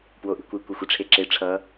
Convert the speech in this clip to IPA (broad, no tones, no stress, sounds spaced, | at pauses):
p w o ʔ i̤ kʷ i kʷ ɛ xʷ i ʈ͡ʂʰ e ǁ e ʈ͡ʂʰ ʌ